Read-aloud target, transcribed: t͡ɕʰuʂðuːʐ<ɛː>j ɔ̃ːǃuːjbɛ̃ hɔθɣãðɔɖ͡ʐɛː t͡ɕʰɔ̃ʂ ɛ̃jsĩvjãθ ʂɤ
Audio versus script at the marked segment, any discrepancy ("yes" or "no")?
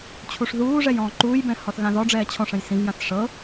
yes